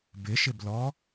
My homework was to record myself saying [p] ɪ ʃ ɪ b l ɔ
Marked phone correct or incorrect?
incorrect